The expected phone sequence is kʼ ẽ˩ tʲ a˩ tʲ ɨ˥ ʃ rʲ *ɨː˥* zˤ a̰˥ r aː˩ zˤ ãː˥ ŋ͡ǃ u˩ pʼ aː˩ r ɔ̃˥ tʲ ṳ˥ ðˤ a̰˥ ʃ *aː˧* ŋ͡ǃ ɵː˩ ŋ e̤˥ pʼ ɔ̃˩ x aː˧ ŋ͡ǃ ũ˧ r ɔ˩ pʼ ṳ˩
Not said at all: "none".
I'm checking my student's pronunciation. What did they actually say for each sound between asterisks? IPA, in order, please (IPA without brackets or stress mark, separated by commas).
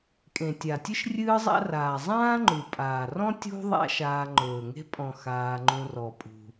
ɨː˥, aː˧